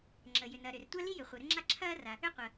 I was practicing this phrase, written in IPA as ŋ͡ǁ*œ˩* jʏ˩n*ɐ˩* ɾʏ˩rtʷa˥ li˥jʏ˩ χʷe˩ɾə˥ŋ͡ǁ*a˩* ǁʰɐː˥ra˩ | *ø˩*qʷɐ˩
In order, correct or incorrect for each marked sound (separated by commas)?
incorrect, correct, incorrect, incorrect